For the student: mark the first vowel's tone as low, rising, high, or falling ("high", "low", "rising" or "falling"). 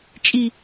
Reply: low